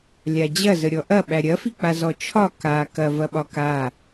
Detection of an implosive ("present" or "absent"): present